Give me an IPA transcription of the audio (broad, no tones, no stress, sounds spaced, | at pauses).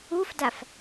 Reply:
u f d a f